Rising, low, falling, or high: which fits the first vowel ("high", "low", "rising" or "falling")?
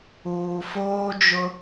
low